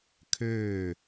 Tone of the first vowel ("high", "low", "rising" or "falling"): falling